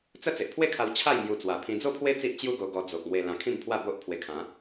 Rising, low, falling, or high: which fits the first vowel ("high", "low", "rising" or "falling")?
high